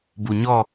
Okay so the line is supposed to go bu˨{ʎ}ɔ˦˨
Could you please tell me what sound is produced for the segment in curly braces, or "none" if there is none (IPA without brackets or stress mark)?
ɲ